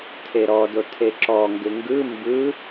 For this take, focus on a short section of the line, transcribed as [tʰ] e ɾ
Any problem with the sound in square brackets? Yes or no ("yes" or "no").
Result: no